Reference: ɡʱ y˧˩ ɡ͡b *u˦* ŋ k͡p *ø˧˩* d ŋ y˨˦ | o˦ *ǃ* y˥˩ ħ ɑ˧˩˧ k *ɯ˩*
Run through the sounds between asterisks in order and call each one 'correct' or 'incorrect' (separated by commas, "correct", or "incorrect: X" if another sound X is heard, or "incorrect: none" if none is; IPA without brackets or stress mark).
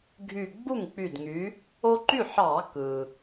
incorrect: u˥˩, incorrect: y˧˩, correct, correct